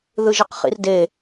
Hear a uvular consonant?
yes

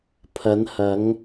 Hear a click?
no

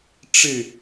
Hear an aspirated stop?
no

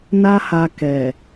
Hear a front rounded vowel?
no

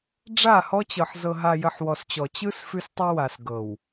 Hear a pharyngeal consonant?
yes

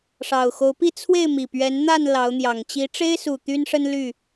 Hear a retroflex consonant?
yes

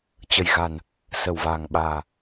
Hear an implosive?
yes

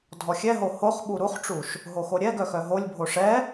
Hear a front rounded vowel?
yes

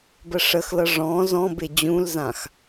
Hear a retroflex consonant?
yes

